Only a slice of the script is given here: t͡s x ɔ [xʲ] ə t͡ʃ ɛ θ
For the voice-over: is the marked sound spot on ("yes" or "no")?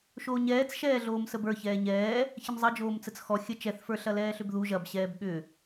yes